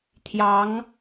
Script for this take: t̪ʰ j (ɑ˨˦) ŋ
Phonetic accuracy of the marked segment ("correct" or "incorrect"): correct